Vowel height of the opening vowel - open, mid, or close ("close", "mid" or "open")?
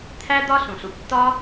open